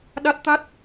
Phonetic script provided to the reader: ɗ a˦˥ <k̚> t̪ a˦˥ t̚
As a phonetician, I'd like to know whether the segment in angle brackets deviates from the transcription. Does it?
yes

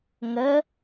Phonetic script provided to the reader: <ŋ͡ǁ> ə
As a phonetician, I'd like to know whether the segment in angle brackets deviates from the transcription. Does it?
yes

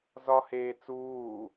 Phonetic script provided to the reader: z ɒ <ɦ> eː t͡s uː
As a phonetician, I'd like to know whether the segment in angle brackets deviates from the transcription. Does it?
yes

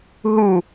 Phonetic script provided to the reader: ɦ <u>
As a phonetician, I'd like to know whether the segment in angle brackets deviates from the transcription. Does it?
no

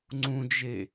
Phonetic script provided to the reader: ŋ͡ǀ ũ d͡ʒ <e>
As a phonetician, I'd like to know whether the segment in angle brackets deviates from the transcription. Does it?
no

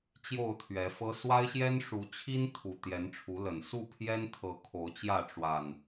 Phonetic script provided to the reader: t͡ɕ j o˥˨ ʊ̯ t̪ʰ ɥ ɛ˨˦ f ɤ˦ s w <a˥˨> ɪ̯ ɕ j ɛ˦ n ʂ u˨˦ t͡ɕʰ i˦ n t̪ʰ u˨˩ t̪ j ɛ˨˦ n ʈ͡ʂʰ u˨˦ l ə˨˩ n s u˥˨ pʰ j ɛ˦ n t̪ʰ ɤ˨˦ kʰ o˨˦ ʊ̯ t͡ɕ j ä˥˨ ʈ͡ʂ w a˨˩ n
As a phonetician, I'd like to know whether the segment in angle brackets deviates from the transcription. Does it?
yes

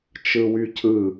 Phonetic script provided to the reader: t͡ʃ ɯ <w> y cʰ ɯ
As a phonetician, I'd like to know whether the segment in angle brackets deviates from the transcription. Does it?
no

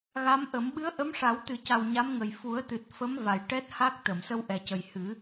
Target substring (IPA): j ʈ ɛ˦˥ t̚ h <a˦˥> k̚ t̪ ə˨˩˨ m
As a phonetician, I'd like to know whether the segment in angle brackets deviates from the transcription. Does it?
no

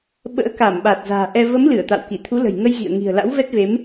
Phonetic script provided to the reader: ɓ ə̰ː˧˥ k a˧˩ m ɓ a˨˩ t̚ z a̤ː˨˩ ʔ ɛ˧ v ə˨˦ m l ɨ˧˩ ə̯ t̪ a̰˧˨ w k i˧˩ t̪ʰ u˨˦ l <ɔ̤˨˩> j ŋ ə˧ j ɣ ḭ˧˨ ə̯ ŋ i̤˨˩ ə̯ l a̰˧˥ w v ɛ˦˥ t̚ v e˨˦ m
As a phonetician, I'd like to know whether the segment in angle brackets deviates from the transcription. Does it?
yes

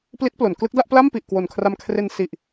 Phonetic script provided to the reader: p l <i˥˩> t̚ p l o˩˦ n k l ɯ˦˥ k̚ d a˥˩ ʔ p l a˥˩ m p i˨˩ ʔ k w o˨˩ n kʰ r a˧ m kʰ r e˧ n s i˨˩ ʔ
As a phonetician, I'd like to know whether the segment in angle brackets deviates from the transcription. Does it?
yes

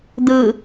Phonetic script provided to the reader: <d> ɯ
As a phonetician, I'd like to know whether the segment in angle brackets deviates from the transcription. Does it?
no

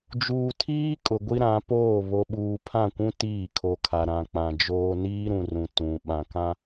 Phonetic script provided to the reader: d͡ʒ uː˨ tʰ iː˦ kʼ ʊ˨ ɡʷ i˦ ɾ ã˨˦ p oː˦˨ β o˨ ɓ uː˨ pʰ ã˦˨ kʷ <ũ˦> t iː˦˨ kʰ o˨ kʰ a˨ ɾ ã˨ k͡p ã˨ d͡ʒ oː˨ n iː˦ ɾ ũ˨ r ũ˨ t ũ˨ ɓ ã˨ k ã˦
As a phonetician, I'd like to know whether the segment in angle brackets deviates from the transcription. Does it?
no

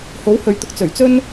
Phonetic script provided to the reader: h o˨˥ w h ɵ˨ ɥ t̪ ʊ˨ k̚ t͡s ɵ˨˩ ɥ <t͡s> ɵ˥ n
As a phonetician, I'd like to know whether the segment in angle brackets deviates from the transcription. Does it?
no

